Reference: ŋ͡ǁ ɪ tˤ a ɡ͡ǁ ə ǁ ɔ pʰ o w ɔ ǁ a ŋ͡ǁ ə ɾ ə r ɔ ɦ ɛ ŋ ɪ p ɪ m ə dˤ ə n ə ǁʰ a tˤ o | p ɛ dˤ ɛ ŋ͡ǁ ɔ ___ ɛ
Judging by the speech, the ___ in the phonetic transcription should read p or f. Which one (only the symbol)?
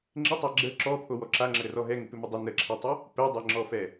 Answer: f